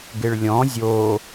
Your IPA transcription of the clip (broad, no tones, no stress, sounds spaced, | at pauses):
ɡ ɪ ɭ lʲ ɔ̃ zʲ o